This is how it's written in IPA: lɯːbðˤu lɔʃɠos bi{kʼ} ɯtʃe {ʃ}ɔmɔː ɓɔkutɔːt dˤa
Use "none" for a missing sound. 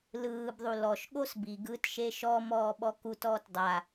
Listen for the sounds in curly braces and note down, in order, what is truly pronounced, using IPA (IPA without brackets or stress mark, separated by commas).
ɡ, ʃ